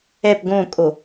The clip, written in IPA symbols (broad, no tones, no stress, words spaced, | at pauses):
ɛp ɡõkʼo